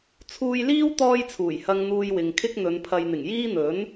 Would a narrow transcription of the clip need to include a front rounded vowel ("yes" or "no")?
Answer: no